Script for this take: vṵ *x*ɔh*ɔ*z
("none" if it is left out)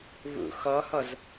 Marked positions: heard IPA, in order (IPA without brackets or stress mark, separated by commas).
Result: x, ɔ